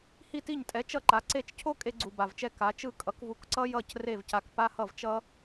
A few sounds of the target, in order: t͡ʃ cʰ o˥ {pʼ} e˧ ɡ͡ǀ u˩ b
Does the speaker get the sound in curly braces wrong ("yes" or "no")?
yes